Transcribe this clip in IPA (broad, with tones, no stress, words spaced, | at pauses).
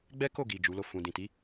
ɡ͡bɛ˦ ko˦˨ɡi˨ d͡ʒu˨˦lo˦˨ fũ˨dĩ˨ti˨˦